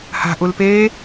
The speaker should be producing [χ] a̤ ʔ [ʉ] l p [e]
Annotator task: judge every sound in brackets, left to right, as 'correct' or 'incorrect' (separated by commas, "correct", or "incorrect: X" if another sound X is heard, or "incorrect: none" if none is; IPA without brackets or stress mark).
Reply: incorrect: h, incorrect: u, incorrect: eː